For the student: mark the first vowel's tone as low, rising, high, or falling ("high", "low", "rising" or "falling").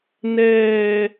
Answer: low